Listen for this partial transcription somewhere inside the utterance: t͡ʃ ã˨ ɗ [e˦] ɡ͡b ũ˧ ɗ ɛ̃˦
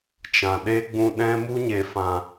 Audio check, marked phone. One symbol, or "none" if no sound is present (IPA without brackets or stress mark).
e˦